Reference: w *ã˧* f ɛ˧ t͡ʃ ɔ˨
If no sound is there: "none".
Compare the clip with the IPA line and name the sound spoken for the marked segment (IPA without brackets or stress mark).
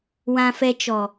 ã˧